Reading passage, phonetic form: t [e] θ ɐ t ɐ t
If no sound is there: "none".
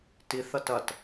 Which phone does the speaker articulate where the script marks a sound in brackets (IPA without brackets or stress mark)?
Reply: i